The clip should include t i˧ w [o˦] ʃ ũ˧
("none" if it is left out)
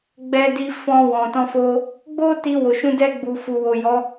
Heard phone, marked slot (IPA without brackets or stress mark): o˨